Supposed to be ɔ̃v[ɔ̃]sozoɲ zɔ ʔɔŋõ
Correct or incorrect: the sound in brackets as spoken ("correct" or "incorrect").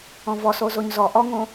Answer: incorrect